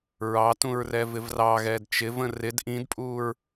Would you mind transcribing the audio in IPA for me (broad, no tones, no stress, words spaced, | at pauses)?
ɹɑtũɹ rɛvɪvrɑɣɛːd t͡ʃɪvə̃ rɪd ʔĩdpʼuːɹ